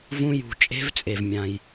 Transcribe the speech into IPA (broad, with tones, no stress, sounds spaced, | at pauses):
v ũ˦˥ j ṳ˧˩˧ t͡ʃʼ e̤˦˥ v t͡sʼ e˩ v mʲ ã˩ j